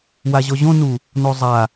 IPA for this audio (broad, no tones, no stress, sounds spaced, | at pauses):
w a ʑ ɔ ʑ õ n u | n o zˤ a